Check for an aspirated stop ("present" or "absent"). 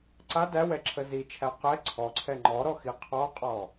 present